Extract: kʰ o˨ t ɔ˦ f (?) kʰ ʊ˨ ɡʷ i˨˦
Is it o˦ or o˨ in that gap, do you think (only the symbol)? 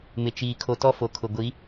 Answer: o˨